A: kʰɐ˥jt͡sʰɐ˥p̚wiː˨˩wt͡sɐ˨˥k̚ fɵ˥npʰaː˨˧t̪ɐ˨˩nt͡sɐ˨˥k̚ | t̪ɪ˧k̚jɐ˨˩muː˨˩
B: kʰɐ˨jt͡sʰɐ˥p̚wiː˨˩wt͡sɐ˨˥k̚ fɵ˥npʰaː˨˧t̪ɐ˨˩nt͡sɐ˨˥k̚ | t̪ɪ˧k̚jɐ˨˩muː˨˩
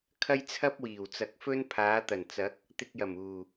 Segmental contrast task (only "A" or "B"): A